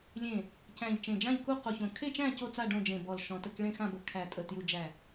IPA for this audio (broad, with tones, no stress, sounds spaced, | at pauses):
lʲ ẽ˧˩ | c æ̃˧˩ ʎ t͡ʃ ẽ˧˩ d͡ʒ ã˥˨ ʎ k u˥˨ q o˧˩ ç õ˧˩ kʰ e˥˨ t͡ʃ æ̃˥˨ c o˥˨ t͡s a˥˨ ɖ õ˥˨ d͡ʒ ẽ˧˩ b ɔ˧˩ l ʃ ɔ̃˧˩ t ə˥˨ k ɭ ẽ˥˨ x ã˥˨ b ə˧˩ kʰ æ˧˩ tʼ ə˧˩ t j u˧˩ d͡ʒ æ˧˩